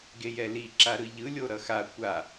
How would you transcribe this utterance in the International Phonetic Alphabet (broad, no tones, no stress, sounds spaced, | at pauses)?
ɡ e j ɛ l i ǁ a ɾ ɯ ʎ ɯ lʲ o ɾ ʌ x a kʷ a